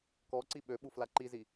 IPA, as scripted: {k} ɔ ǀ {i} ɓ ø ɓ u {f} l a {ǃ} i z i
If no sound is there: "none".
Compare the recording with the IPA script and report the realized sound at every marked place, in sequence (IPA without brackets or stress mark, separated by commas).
k, i, f, ǃ